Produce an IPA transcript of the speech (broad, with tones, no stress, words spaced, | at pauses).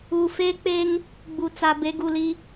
u˨ fe˦k͡pe˦ŋ | ɡ͡bu˨t͡sa˨ be˨˦ɡu˨li˦